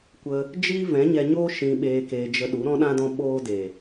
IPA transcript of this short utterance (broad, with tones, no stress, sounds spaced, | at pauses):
kʷ ə˧ | d͡ʒ iː˦ v ɛ̃˨˦ ɲ ɛ˧ ɲ o˦ ʃ ĩ˧ ɓ eː˧ k eː˧ d͡ʒ ə˧ ɗ u˨˦ ɾ ɔ̃˦ ɗ ã˦ d ɔ̃˦ ɓ oː˦ d e˨